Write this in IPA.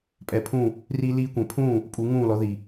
pʼ ɛ˩˥ pʰ ũː˥˩ | r i˥ l iː˥ kʷ ɛ̃˩˥ pʰ ũː˥˩ | pʼ u˩˥ ŋ ũː˥˩ l ɔ˩˥ ð i˩

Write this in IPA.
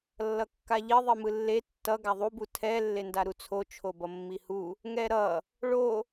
lː ʌ kː a ʎ i ðˤ i m ɯ lː e tː ʌ ɡ a ðˤ u b u tʰ ɛ lː e n d a ɾ u t͡sʰ o t͡ʃʰ o b ʌ mː i h u | ŋ ɛ ɾ ʌ | ɭ o

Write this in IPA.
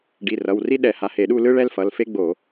ɖ i˩˧˩ r ʌ˩˧˩ w r i˥ ɗ ɛ˧˩˧ h a˩˧˩ h e˧˩˧ ɗ u˥˧ l ɯ˥ ɭ ɛ˥ l f ʌ˩˧˩ l f e˥ ɡ͡b o˧˩˧

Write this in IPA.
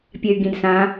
pʲ ɛ y̯ ɡ ĩ d s ã

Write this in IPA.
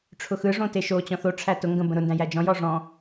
ʈ͡ʂʰ ʊ x ɯ ʐ õ t e ʃ o t͡ɕ ɔ̃ θ o ʈ͡ʂʰ æ t ʊ ŋ ɡ ə̃ b ə̃ ɾ ʊ n d æ̃ j æ d͡ʒ ɔ̃ j ɔ ʐ ɔ̃

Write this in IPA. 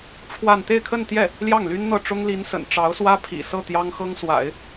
ʈ͡ʂʰ w a˥˧ n t̪ e˥˧ ɪ̯ kʰ ə˥˧ n t̪ j ɛ˥˩ | l j ɑ˥˩ ŋ l y˥ n n̪ ɤ˥˩ ʈ͡ʂ ʊ˥ ŋ l i˧˥ n s ə̰˨˩ n ʈ͡ʂ ɑ˧˥ ʊ̯ s w ä˥ pʰ ḭ˨˩ s ɤ˥˩ t̪ j ɑ˥ ŋ x ɤ˥ ŋ s w a̰˨˩˦ ɪ̯

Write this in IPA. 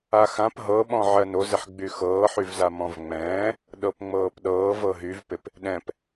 a x ã p ɦ ɤ ɓ ɔ̃ ʕ ɜ n o z ɪ ħ ɡ͡b y x ɤː ħ y v z a m ɔ̃ v ŋ͡m ɛ̃ː | ɗ ɤ p ŋ͡m ɤː p ɗ ɤː v ɤ ɦ y v p ɪ p | ɗ ɛ̃ p

